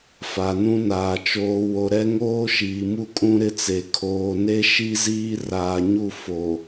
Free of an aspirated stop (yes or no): no